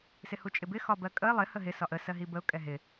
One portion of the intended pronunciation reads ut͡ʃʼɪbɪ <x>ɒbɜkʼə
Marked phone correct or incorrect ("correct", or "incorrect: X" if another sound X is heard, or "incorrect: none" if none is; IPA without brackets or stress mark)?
correct